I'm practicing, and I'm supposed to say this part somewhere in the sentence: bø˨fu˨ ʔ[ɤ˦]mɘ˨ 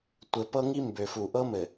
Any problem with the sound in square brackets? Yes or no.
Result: no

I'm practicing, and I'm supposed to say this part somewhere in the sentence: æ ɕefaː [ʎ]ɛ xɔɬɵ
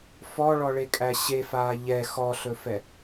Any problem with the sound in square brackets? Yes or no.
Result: no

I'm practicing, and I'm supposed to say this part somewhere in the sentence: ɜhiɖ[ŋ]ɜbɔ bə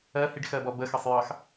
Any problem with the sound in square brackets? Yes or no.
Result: yes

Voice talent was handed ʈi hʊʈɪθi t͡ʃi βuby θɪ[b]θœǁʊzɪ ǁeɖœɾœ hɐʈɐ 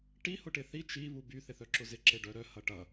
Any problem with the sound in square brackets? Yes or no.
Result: yes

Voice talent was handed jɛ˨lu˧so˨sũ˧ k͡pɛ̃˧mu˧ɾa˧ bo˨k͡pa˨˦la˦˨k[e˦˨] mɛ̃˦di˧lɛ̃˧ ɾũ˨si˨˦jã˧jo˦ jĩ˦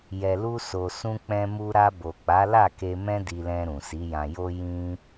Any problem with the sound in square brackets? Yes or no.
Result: yes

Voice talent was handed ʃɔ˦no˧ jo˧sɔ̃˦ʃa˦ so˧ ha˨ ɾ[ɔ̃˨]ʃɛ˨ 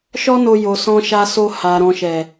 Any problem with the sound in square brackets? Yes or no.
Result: no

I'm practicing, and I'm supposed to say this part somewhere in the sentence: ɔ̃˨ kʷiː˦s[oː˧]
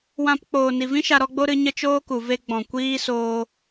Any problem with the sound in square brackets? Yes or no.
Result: no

